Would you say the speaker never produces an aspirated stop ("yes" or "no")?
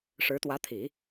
no